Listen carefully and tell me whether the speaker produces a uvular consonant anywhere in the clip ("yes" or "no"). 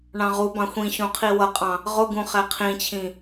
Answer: yes